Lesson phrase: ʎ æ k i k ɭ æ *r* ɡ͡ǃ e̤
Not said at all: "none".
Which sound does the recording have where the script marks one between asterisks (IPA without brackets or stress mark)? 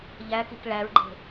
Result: ɹ